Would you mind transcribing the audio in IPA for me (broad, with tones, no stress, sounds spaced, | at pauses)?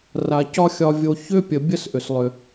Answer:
r a˧ c ɒ˦ xʲ ɒ˧ vʲ o˧ ç ʏ˦ pʲ ə˨ bʲ ə˦ s ʔ ʏ˨ s lˠ ʏ˨